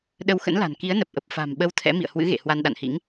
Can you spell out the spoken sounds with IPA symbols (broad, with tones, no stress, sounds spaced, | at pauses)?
ɗ ə˧ w x ə̰˧˥ n l a̤˨˩ n k i˨˦ ə̯ n ə˨˩ p̚ ʔ ə˨˩ p̚ f a̤˨˩ m ɓ ə˧ w t̪ʰ ɛ̰˧˥ m ḭ˧˨ ə̯ h w ɨ̰˧˥ ɣ ḛ˧˨ h w a˧ n ɗ a̰˧˨ n h ḭ˧˥ ŋ